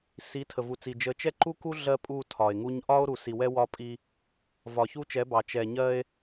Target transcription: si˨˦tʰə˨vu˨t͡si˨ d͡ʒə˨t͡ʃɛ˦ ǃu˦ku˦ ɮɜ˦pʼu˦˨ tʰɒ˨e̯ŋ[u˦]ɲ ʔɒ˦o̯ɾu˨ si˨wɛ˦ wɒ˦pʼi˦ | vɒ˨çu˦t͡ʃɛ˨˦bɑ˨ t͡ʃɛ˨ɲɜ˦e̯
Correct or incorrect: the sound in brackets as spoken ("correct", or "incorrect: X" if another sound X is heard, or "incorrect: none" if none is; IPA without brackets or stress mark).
correct